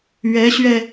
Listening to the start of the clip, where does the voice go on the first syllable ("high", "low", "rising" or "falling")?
rising